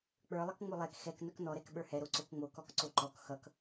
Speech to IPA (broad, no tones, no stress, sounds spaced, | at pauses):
k͡p ə˞ lˠ ʌ k ŋ͡m o lˠ ɛ k x ɛ k n œ k n ɔ ɾ ɛ k ɓ ə˞ h ɛ ɾ o ǀ o k ŋ͡m o k ɔ k ǀ o ǃ ɔ k x ʌ k